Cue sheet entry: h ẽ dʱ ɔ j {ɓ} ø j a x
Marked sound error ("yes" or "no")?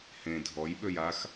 no